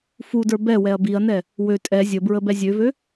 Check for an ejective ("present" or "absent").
present